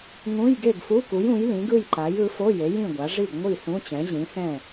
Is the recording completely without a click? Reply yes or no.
no